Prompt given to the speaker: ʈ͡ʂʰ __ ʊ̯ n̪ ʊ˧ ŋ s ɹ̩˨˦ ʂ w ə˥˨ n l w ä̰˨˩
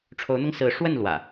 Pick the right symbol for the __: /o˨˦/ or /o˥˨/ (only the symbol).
o˨˦